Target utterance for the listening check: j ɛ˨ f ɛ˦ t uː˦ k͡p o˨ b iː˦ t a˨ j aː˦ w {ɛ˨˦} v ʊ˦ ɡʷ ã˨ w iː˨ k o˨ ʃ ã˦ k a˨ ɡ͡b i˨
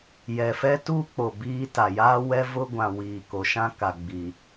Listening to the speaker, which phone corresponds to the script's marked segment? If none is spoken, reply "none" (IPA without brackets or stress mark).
ɛ˦